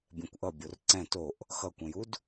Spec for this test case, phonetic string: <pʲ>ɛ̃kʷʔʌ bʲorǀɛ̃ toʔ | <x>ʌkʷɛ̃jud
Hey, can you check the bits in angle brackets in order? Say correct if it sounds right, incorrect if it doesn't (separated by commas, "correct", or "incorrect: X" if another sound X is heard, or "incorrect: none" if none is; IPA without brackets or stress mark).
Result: incorrect: bʲ, correct